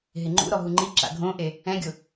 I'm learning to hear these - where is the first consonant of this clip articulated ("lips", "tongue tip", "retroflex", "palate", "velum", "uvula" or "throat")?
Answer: throat